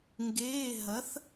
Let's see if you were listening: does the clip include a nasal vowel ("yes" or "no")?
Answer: no